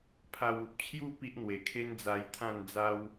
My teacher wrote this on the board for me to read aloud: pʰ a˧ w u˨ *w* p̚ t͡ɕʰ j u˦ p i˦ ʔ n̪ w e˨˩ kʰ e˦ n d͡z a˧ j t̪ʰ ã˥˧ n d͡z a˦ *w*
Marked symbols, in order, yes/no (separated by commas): no, yes